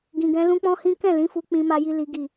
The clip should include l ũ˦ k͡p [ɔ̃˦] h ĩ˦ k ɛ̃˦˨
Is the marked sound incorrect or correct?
correct